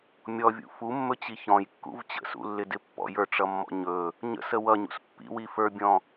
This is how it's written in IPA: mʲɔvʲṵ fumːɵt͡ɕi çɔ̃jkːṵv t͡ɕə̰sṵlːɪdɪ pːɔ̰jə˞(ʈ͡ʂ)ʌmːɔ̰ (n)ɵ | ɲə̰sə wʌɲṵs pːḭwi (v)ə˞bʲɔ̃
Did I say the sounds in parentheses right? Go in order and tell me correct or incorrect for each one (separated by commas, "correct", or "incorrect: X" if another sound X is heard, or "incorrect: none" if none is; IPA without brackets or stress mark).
correct, incorrect: ɲ, incorrect: f